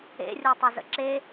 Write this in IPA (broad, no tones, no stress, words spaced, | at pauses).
ḛrʲotˤɵ zə̰ǁe